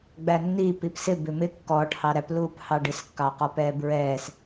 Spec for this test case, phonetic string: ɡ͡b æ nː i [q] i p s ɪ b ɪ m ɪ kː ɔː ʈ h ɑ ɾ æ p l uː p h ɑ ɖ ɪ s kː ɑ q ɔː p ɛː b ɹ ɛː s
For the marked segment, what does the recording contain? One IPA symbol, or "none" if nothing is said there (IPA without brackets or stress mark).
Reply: p